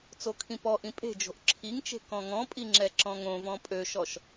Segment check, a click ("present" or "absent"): present